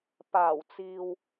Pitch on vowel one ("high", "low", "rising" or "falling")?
low